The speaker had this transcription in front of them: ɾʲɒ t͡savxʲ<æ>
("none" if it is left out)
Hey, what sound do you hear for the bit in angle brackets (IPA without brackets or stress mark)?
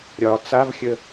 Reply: ə